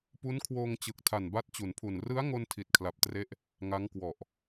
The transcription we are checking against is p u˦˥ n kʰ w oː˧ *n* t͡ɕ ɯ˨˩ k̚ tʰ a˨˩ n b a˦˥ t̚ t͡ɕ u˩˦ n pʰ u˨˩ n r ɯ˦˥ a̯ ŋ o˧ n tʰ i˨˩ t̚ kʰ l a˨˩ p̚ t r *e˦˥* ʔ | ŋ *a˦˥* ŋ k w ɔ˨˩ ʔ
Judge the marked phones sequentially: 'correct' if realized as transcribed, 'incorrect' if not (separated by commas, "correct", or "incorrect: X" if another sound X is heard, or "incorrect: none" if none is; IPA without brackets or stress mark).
incorrect: ŋ, correct, correct